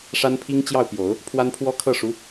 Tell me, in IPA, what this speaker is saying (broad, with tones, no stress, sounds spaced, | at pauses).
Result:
ʂ a˥ n pʰ i˥ ŋ t͡ɕ j ɑ˥˩ ʊ̯ p j o˨˩˦ ʊ̯ | pʰ w a˥ n pʰ w ɔ˥ kʰ ɤ˥˩ ʂ u˧˥